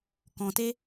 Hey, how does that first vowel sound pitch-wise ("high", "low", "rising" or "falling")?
low